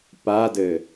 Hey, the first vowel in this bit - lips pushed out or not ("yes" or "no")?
no